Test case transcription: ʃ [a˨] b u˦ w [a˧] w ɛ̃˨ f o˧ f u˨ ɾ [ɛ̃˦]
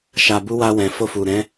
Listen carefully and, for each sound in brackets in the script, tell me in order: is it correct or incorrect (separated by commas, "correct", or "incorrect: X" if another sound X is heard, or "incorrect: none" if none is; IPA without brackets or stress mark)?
incorrect: a˧, correct, incorrect: ɛ̃˨˦